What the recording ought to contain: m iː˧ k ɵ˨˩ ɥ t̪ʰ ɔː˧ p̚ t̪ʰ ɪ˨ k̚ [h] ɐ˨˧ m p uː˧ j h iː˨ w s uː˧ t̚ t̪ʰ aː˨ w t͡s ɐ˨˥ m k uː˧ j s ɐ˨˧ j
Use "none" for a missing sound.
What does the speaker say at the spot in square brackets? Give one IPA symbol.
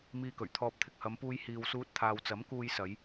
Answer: h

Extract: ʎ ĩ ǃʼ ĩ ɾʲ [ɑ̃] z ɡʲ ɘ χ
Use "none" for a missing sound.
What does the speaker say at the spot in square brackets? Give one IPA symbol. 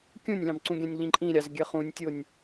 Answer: ɑ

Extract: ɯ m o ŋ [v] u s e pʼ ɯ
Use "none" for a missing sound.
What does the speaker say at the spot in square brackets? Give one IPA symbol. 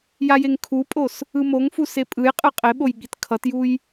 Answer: f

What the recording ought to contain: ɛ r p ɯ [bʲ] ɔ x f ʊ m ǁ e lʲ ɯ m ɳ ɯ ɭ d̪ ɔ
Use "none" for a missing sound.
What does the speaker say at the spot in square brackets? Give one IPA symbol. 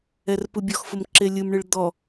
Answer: bʲ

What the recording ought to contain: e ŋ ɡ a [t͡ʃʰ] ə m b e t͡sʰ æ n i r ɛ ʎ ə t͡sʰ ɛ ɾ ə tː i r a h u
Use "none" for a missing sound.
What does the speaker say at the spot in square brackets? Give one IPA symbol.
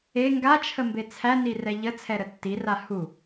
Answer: t͡ʃʰ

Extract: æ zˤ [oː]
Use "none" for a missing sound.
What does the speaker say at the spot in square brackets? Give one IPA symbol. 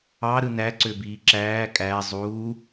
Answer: uː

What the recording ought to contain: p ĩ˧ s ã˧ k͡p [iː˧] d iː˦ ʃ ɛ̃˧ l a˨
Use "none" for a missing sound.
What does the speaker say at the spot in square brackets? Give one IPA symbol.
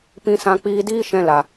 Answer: iː˧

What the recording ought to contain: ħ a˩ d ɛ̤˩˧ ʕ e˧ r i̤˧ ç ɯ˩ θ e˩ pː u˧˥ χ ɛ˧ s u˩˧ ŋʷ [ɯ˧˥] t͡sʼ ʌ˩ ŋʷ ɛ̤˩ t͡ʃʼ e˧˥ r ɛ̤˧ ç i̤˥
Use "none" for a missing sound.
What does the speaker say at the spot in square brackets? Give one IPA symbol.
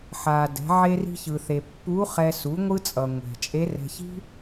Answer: ɯ˧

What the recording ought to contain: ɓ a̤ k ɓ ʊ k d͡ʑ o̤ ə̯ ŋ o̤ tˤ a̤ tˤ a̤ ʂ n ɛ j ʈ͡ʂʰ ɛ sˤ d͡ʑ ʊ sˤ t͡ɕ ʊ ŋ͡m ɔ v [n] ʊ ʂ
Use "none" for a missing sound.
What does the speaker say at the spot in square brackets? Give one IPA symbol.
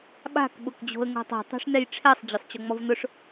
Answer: n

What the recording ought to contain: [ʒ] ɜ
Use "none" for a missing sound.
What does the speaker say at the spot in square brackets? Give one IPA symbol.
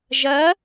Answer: ʒ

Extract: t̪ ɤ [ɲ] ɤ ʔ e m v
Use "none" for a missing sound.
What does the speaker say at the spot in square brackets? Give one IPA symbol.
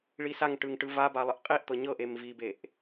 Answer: ɲ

